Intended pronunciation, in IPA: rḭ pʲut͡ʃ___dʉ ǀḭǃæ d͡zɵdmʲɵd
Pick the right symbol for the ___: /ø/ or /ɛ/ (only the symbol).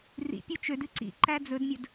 ø